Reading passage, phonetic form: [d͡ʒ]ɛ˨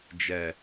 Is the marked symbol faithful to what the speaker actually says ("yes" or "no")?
yes